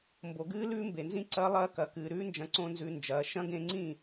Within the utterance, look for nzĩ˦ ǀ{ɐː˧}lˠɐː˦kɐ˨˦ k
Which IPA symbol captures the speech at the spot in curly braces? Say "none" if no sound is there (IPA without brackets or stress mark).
ɐː˦